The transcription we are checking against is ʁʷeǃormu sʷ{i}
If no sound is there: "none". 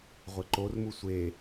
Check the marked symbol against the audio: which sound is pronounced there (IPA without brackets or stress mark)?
e